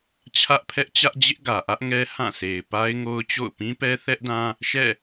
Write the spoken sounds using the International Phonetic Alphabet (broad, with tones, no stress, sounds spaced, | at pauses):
t͡ɕʰ ä˦ ʔ pʰ ɛ˦ ʔ t͡ɕ ä˦ ʔ d͡ʑ ɪ˦ ʔ ɡ ä˨ ʔ ä˦ ʔ ŋ ɛ˦ h ã˦˨ sʰ e˨ ɪ̯ p a˦ ɪ̯ ŋ o˦ ʊ̯ t͡ɕ o̰˦˨ ʊ̯ p ĩ˦ p ɛ˦ θ ɛ˦ ʔ d ã˦ | ʃ ɛ̰˦˨